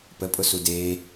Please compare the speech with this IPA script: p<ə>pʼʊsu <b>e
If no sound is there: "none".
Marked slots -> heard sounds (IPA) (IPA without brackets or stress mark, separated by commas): ə, d